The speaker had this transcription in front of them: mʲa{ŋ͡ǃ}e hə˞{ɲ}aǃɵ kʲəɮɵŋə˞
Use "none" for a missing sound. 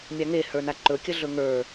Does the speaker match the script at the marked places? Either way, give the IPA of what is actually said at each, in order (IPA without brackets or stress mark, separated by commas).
ŋ, n